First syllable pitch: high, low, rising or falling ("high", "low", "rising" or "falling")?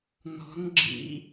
rising